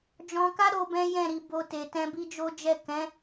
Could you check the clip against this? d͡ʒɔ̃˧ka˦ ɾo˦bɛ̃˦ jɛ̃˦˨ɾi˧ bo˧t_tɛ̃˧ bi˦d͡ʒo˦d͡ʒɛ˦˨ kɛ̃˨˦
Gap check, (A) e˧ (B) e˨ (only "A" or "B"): B